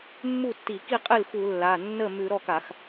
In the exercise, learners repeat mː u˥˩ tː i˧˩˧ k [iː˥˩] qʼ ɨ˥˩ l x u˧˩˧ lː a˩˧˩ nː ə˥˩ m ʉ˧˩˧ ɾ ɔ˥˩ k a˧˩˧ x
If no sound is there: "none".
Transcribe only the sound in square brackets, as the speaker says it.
i˥˩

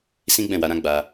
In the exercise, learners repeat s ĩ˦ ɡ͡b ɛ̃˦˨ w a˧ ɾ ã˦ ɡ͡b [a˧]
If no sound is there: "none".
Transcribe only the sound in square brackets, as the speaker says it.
a˧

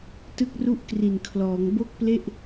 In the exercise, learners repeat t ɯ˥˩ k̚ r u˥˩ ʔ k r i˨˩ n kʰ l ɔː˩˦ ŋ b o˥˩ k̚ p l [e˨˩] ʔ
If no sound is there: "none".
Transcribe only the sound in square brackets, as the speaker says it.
e˥˩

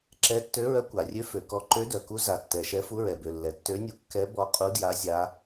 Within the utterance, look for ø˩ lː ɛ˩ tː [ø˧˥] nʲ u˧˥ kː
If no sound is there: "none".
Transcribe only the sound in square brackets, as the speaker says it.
ø˧˥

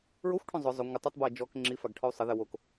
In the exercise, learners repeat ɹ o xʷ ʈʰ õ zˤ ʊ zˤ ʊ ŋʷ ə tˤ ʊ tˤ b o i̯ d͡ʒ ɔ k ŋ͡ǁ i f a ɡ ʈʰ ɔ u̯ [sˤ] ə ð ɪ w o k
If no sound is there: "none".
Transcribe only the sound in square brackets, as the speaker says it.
sˤ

